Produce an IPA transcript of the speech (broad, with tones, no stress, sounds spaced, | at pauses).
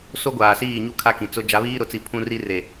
s o˦ ɡʷ aː˨ s iː˦˨ ɲ u˦ kʰ a˦ k ĩ˨ t͡s ʊ˦ d͡ʒ a˨˦ β iː˦ ɾ ʊ˨ t͡s i˨ pʰ ũ˦ r i˦ r e˨